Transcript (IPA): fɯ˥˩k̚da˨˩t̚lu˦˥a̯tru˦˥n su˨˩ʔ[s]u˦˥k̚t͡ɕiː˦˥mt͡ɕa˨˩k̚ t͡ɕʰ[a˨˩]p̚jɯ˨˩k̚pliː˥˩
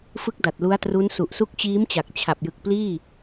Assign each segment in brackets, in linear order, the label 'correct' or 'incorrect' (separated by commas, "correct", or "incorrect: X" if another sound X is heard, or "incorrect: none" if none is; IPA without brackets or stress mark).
correct, correct